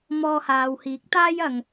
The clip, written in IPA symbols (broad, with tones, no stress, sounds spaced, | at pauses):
m ɔː˧ h aː˨ w h iː˨˥ k̚ t̪ aː˥ j ɐ˨˧ ŋ